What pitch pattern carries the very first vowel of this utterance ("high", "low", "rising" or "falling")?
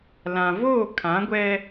low